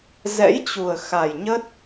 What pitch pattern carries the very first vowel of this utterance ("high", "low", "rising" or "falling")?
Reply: rising